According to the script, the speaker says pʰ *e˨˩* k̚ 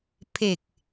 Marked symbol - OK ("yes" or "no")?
yes